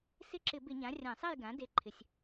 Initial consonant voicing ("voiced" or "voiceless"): voiceless